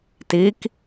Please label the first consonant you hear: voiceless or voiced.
voiceless